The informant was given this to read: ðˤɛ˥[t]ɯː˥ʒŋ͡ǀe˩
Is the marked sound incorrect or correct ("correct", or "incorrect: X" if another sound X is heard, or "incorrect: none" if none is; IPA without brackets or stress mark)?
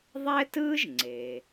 correct